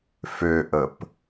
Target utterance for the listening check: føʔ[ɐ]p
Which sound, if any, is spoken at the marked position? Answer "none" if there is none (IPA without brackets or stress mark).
ə